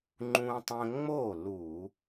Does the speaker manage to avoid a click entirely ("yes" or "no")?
no